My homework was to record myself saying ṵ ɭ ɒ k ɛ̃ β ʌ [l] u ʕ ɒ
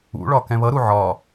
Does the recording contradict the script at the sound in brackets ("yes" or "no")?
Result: yes